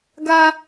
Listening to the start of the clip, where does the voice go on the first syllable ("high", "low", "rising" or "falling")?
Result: high